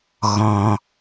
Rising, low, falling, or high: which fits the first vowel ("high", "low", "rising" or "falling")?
low